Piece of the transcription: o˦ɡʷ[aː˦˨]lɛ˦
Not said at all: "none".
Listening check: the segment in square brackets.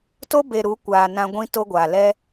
aː˨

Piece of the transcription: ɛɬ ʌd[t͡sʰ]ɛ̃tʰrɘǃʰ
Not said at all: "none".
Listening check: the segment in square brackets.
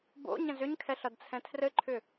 t͡sʰ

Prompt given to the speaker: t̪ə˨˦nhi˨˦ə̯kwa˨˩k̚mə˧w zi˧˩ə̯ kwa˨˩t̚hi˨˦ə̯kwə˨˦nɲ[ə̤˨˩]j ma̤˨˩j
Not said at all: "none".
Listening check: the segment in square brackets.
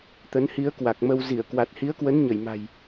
ə˧˩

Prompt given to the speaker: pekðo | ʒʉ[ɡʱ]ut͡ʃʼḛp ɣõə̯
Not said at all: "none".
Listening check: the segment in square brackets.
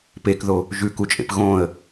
k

